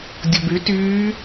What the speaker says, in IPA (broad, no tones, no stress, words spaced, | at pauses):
dʲoby tyː